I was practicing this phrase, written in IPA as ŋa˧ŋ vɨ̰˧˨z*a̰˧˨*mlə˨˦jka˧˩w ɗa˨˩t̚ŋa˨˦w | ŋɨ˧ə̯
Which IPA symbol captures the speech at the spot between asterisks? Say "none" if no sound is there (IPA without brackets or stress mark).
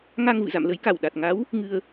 a̰˧˨